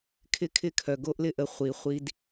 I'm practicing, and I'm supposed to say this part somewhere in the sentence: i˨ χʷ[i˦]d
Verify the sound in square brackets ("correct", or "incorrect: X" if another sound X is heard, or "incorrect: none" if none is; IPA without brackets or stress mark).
correct